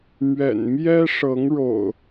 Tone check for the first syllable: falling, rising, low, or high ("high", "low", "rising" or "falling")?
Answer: low